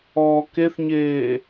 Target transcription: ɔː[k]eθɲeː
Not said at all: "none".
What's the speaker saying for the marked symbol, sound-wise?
k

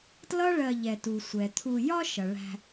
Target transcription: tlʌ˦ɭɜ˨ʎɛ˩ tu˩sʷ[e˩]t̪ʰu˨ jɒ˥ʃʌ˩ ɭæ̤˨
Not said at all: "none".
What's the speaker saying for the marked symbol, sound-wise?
ɛ˩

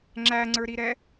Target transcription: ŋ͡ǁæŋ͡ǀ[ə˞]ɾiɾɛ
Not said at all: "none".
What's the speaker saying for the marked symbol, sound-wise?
ə˞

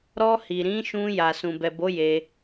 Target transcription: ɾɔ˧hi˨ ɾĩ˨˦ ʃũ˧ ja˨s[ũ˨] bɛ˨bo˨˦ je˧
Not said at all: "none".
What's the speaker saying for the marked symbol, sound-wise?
ũ˨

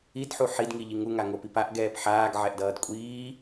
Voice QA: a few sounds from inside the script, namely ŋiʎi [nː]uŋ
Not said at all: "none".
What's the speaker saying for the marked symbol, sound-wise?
ŋ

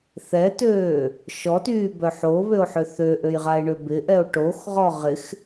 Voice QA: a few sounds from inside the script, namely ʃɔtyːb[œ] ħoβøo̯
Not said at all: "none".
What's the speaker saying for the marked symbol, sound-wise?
œ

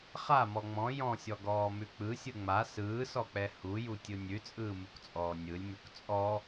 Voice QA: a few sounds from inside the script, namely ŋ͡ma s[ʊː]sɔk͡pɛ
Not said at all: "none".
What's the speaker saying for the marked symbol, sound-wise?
ɯː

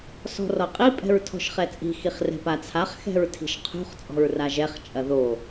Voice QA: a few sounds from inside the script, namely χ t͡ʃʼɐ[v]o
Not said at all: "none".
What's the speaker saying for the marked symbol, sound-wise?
ð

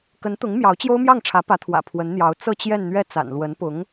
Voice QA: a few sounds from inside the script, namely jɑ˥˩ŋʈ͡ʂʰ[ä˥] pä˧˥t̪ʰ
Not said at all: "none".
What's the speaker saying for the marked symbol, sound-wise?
ä˧˥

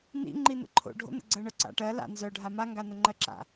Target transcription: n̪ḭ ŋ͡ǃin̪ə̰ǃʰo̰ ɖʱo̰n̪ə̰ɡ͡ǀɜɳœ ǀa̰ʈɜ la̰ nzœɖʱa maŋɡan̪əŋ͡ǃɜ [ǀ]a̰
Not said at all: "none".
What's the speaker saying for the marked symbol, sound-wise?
ǁ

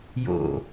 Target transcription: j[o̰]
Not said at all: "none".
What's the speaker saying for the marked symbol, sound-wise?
o̰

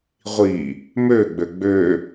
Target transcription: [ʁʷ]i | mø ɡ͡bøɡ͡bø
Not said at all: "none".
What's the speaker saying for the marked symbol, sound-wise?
ʁʷ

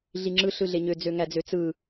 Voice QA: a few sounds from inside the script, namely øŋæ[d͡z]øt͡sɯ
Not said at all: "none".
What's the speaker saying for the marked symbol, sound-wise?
d͡z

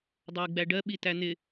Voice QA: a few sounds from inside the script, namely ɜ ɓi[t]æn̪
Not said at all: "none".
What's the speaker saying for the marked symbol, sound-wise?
t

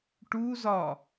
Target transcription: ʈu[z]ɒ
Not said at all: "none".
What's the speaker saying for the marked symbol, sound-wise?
z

